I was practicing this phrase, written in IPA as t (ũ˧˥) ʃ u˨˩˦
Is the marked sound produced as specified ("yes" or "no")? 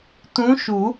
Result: yes